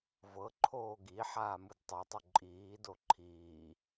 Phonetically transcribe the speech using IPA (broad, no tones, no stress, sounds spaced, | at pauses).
v ɤ ǃʰ oː ɡ i ħ aː m ɯ d tˤ ɤ tˤ u ǃʼ iː d o ǃʰ iː